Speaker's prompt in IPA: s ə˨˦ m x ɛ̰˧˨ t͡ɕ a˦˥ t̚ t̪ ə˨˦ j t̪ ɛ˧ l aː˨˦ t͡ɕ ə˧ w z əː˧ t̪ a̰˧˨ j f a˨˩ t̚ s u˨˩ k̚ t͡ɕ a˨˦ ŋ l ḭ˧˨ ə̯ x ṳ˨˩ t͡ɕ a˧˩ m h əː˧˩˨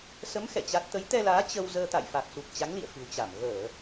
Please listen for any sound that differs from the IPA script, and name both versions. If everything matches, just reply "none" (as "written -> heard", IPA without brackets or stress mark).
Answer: h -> ɣ